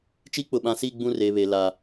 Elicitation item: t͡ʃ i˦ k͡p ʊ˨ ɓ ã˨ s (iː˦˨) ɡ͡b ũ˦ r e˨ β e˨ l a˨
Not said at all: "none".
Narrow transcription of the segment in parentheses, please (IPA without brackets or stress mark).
iː˦˨